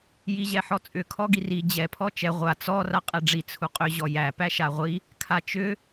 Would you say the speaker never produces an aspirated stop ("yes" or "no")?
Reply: no